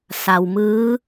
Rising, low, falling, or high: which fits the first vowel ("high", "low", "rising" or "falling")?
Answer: low